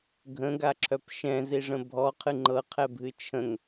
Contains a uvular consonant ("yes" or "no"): yes